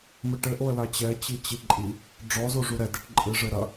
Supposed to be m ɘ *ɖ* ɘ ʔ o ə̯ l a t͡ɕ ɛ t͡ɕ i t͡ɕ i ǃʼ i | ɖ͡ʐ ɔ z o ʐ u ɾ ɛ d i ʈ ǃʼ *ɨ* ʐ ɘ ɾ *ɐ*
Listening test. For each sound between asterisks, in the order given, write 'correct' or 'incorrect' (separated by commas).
incorrect, correct, correct